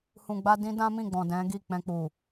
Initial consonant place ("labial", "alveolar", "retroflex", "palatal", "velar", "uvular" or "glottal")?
glottal